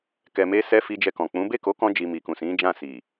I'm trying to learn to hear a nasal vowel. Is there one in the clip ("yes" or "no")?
yes